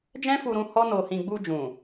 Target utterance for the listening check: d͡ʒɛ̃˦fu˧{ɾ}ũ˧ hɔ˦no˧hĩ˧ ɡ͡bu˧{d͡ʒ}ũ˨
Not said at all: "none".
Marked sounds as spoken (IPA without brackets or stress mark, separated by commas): ɾ, d͡ʒ